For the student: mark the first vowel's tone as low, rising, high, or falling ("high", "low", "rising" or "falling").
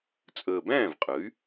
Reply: low